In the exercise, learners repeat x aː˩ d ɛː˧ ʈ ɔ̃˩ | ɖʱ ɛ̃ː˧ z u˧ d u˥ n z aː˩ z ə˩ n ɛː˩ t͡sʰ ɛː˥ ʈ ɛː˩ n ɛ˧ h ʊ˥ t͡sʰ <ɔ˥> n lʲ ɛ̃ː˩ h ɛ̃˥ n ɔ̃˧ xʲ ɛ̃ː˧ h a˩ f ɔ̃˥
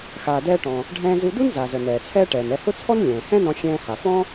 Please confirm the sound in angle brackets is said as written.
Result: yes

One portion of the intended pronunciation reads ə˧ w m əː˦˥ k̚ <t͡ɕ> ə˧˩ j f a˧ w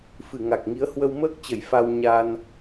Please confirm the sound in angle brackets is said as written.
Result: yes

